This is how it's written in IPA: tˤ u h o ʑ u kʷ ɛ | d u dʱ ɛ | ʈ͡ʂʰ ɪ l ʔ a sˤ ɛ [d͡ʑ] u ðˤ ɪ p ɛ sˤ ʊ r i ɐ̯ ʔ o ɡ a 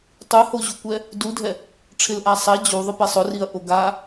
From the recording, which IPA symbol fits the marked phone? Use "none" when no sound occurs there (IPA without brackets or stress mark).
d͡ʑ